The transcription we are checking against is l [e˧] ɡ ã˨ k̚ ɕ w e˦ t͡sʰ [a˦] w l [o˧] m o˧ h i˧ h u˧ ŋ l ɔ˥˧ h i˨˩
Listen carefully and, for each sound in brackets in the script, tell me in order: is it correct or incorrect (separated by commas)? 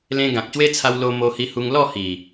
incorrect, incorrect, correct